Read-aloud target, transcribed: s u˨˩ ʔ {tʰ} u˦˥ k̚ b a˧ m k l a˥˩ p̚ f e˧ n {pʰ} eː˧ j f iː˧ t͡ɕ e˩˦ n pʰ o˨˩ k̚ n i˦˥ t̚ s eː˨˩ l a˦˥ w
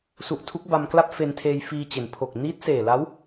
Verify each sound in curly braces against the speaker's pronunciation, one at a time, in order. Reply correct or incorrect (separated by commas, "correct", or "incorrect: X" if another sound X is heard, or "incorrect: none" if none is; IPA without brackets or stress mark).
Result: correct, incorrect: tʰ